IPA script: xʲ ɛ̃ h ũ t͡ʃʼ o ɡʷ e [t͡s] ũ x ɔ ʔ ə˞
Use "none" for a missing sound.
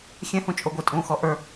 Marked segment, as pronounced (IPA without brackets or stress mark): tʼ